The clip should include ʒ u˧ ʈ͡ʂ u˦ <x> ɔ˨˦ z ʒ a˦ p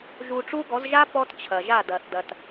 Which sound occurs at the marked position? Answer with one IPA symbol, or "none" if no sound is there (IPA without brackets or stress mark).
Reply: ɡ